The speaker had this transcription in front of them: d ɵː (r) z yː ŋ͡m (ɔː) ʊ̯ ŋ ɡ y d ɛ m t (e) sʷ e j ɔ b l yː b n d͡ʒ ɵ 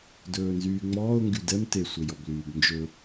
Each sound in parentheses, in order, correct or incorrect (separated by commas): incorrect, correct, correct